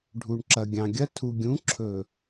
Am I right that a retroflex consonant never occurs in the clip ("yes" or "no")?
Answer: no